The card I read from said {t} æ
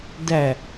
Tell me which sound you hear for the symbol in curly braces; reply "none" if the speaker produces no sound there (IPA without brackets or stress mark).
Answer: d